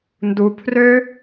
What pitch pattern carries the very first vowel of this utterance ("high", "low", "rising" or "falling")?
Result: low